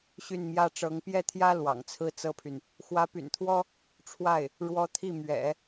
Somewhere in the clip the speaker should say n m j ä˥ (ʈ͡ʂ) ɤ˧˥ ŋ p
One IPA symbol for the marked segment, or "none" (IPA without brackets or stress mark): ʈ͡ʂ